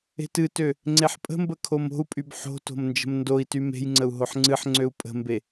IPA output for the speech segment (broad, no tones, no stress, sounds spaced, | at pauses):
e̤ t ɨ t ø | ŋ͡ǀ e ħ pʼ ə̤ m b ə kʰ o m o̤ u̯ pʼ y b ħ o̤ t o̤ m n d͡ʒ ə̤ m n d o i̯ t y m e̤ j ŋ͡ǀ ə u̯ ɦ o ħ ŋ͡ǀ ɨ ħ ŋ͡ǀ ø u̯ pʼ ə̤ m b e